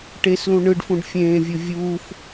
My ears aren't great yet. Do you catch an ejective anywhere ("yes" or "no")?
no